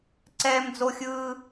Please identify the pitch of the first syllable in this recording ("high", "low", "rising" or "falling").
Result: high